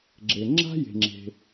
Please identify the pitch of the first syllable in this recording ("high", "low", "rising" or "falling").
low